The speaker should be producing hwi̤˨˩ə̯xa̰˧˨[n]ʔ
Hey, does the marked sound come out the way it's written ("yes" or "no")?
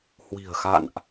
yes